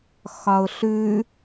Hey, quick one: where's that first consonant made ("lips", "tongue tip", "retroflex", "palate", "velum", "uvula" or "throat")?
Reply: velum